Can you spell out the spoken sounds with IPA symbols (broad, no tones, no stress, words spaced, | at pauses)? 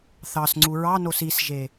θɑsŋ͡ǀu ɹɑnos isʒe